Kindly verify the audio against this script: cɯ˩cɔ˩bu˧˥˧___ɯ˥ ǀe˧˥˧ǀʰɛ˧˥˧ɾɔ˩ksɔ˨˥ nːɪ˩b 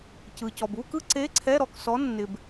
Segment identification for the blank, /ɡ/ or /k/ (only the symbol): k